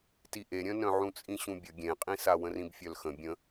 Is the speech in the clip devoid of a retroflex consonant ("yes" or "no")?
yes